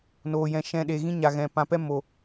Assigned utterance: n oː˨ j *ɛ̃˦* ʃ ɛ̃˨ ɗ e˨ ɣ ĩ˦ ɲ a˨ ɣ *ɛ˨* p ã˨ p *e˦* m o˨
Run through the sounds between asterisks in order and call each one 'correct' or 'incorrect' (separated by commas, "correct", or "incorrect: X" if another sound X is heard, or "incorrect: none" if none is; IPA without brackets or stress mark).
incorrect: ɛ̃˨, incorrect: ɛ̃˨, incorrect: ɛ˦